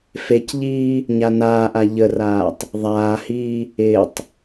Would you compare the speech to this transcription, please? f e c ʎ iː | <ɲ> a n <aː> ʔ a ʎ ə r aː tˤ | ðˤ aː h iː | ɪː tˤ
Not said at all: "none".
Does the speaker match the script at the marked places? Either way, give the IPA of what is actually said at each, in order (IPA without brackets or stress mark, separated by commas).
ɲ, aː